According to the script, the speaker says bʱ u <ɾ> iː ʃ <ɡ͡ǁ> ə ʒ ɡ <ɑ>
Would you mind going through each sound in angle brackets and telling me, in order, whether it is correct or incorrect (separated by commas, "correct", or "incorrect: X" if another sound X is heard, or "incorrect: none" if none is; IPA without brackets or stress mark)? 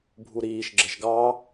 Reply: correct, correct, correct